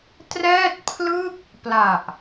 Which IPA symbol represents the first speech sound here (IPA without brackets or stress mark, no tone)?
t